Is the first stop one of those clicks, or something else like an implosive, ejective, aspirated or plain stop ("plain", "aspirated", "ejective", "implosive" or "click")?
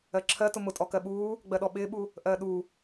click